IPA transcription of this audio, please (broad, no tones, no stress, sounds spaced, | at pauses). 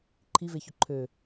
ǃʰ i v e ç ʊ ǃʰ ø